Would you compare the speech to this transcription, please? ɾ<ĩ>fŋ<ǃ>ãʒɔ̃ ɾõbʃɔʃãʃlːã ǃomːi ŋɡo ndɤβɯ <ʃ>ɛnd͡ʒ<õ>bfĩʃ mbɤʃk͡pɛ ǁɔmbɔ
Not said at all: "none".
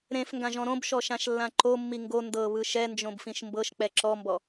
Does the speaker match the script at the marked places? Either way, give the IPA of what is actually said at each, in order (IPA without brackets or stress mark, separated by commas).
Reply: ẽ, ɡ, ʃ, õ